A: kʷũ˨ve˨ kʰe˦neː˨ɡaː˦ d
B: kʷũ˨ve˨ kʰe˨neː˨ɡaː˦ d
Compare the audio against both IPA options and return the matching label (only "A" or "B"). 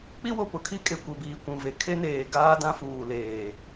A